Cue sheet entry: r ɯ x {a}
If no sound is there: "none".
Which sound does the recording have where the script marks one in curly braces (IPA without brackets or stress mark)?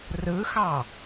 ɑ